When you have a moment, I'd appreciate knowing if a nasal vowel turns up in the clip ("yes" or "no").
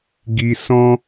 yes